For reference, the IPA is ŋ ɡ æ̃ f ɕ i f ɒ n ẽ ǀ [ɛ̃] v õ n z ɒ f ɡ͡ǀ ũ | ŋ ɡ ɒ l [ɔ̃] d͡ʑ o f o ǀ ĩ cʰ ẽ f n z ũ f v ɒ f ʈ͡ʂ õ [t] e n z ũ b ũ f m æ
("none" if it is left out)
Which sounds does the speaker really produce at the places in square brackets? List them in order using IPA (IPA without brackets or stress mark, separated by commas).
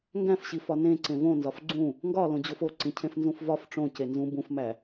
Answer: ẽ, õ, c